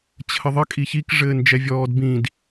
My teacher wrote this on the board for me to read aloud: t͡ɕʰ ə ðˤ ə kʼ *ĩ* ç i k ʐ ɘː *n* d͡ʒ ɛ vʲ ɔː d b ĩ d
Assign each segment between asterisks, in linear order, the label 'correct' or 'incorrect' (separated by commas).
incorrect, correct